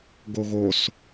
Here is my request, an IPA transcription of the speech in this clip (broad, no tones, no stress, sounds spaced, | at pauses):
ɡ o ɣ o s